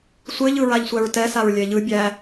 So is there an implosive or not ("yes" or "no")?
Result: no